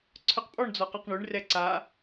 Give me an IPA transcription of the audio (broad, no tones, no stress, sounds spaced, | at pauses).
ǀʰ œ q pʼ ɔ ɳ d͡z ɔ q ə˞ q ɳ ʉ ɳ r ɛ ǀ a